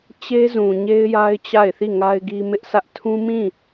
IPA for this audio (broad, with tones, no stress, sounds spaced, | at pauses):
t͡ɕ e˦ z ũ˨ ɲ e˦ ɪ̯ j a˦ ɪ̯ t͡ɕ a˦˨ ɪ̯ θ i˦˨ ŋ a˦ ɪ̯ ɡ i˦ m ɪ˦ ʔ sʰ ä˦ ʔ tʰ ũ˦ m ĩ˦˨